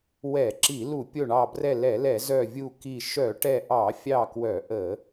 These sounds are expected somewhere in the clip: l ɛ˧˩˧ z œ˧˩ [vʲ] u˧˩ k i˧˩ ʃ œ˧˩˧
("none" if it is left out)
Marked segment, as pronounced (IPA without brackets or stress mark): vʲ